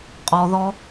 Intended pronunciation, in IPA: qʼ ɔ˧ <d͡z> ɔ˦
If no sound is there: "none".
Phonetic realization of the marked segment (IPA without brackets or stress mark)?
ð